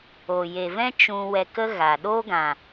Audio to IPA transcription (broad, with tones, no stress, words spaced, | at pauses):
o˨je˨vɛ̃˦ t͡ʃũ˧ wɛ˧kə˦ ɣa˨ ɗoː˦ɡã˨